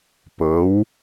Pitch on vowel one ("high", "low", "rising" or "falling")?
rising